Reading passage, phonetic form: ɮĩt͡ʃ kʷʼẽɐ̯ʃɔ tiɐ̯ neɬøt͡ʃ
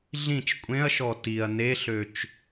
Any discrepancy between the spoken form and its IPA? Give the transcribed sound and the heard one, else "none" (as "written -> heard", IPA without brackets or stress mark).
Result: none